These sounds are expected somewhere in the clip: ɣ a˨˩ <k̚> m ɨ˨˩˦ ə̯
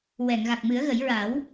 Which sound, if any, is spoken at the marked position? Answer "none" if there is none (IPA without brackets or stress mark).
k̚